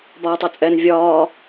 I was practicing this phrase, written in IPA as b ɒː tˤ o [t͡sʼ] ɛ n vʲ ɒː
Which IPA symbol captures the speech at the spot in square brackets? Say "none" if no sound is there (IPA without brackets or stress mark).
t͡sʼ